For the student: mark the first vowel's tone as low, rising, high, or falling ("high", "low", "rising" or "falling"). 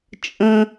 high